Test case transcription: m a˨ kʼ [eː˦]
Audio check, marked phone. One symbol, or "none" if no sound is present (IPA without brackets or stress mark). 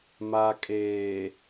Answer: eː˨